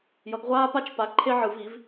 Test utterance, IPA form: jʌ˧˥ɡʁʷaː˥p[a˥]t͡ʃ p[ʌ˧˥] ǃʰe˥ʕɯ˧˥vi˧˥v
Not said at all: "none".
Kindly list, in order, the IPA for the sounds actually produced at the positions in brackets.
a˥, a˧˥

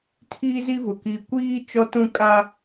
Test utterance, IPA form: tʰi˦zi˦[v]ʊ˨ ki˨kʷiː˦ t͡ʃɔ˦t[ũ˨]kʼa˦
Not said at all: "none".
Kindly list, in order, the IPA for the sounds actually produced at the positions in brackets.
v, ũ˦

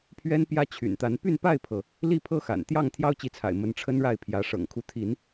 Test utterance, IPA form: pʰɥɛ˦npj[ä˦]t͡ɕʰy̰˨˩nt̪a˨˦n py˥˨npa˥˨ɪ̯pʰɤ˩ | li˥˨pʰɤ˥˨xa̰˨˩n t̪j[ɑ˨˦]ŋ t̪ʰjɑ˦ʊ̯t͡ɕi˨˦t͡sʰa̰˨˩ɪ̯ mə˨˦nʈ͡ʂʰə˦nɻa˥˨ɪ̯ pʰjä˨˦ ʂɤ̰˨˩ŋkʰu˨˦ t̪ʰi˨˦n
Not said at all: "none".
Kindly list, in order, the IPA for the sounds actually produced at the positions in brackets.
ä˦, ɑ˥˨

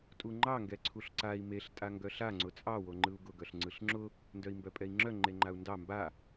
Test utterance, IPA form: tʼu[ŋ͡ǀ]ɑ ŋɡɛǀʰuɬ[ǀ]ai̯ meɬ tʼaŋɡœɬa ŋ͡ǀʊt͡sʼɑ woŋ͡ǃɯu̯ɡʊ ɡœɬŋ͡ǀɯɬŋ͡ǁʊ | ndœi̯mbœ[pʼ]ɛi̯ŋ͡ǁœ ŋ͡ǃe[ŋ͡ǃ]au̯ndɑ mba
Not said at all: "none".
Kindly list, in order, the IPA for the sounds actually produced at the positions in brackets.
ŋ͡ǃ, ǀ, pʼ, ŋ͡ǃ

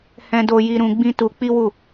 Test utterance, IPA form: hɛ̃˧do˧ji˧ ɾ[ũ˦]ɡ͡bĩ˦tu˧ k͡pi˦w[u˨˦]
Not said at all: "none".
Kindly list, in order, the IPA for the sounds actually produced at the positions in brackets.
ũ˧, u˦˨

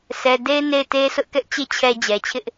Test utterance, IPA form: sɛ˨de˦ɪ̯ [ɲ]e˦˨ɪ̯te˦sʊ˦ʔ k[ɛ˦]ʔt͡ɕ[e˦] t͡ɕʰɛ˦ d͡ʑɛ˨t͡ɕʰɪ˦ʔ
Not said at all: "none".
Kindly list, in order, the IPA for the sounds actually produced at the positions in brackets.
n, ɛ˦, e˦

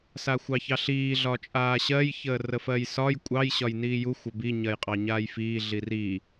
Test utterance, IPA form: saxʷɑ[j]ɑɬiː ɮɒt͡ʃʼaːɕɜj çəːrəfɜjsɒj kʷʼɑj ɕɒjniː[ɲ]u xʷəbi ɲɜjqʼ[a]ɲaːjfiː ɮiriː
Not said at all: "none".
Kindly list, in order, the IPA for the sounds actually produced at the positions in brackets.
ç, j, ɑ

